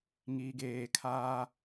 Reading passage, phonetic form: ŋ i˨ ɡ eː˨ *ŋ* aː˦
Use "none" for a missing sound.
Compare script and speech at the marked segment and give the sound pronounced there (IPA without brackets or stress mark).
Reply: kʰ